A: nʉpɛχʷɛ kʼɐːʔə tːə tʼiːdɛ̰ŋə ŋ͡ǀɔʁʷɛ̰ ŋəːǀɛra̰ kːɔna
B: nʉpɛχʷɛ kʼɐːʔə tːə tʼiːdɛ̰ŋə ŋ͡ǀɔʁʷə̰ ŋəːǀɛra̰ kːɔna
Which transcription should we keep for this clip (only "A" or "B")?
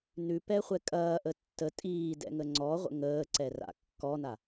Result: B